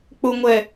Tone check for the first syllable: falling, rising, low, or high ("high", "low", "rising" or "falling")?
low